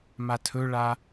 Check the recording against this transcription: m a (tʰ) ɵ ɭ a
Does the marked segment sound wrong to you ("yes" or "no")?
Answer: no